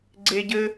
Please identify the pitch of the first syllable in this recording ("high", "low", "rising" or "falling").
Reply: high